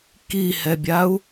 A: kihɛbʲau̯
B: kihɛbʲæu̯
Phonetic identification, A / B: A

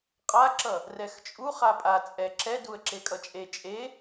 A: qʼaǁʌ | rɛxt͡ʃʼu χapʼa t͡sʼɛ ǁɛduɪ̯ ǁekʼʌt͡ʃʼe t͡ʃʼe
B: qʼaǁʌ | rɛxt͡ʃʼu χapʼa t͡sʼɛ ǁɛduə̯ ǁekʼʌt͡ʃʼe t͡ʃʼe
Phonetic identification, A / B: B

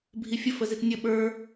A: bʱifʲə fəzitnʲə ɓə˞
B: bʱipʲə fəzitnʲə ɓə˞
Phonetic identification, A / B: A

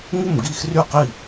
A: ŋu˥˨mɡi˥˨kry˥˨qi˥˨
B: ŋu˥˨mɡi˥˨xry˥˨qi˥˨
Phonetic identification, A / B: B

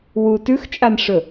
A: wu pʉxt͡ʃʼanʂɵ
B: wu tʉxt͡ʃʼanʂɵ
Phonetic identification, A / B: B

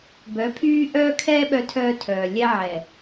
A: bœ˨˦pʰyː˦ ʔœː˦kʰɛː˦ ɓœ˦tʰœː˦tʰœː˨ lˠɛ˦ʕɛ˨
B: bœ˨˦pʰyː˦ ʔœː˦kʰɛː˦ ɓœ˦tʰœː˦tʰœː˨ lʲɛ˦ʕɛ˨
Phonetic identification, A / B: B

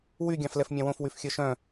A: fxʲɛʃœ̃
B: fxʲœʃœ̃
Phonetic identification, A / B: B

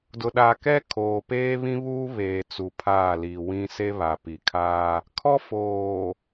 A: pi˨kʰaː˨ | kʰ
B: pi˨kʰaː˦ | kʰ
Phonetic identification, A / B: B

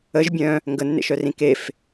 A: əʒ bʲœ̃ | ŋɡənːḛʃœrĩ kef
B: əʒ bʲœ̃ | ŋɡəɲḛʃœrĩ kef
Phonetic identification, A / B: A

